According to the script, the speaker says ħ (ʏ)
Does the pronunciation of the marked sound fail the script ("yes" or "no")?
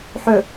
no